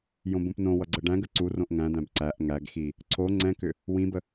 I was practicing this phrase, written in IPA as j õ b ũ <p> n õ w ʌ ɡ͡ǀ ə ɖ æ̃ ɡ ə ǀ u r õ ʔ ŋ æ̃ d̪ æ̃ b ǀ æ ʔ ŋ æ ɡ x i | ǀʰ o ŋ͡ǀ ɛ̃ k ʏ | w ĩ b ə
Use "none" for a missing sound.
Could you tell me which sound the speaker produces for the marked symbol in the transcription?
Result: p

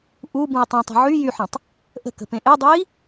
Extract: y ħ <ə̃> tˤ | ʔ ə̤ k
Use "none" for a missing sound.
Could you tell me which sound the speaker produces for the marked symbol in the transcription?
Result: ə̃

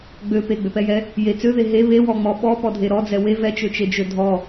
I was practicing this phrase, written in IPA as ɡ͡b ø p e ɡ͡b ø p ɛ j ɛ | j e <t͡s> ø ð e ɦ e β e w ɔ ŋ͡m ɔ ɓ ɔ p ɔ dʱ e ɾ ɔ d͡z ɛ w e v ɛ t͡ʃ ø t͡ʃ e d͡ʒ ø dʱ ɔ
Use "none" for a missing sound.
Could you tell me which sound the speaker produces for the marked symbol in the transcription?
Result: t͡s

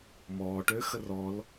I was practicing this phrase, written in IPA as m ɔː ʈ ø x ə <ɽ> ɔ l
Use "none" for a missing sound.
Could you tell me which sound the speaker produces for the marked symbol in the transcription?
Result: r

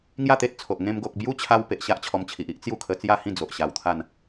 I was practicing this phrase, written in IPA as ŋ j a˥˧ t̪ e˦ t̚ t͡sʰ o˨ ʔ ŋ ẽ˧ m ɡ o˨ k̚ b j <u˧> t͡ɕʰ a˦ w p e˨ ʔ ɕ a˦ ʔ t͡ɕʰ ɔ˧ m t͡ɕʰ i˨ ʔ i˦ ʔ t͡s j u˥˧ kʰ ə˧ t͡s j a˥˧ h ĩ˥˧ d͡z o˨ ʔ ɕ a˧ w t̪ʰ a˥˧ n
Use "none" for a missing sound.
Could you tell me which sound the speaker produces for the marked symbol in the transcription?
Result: u˦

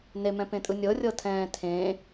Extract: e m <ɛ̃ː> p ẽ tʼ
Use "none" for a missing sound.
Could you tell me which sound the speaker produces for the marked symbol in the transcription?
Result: ɛ̃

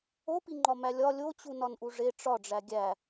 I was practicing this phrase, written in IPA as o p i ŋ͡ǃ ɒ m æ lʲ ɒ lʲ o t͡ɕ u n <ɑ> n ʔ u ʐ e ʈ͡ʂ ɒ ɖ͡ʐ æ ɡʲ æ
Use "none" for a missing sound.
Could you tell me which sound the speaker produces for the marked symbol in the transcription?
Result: ɒ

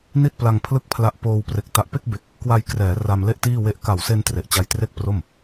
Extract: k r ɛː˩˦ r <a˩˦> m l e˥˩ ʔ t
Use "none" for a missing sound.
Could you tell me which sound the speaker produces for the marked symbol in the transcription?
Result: a˧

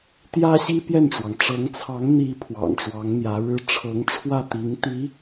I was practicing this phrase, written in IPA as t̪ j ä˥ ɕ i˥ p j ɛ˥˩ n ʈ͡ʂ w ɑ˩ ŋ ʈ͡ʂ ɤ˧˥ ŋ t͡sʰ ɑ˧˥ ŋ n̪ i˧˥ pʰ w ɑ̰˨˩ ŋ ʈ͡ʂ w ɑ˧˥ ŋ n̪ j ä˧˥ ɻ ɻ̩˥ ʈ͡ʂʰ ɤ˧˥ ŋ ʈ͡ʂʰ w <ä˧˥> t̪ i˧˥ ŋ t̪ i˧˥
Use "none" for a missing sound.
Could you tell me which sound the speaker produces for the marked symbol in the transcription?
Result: ä˥˩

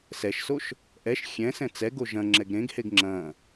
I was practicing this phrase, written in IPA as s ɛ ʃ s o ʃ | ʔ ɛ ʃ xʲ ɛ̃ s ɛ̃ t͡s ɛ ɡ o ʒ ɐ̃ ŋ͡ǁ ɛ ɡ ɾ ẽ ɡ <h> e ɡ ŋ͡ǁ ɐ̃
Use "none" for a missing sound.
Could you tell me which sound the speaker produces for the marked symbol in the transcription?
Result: h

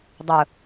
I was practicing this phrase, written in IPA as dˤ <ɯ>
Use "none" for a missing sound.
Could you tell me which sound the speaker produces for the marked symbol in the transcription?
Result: ʊ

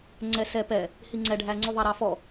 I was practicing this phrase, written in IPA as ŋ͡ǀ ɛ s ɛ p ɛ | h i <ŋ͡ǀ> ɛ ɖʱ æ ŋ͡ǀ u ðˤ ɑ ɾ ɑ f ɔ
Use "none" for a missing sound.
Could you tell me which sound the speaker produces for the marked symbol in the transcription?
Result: ŋ͡ǀ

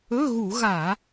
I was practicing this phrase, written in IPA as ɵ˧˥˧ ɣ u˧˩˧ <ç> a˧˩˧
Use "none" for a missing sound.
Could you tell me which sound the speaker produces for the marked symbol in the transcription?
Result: ɣ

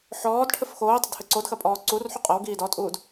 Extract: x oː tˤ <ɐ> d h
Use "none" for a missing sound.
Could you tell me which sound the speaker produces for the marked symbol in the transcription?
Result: ɐ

